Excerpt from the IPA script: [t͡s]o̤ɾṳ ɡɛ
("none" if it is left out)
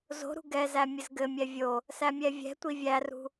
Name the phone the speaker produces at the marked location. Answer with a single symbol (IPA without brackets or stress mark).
z